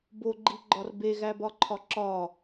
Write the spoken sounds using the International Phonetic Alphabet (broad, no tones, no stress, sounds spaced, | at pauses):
b o ɡ͡ǃ i ɡ͡ǃ ɒ r b e ɣ æ b ɒ ǃʰ ɒ ǁ ɒ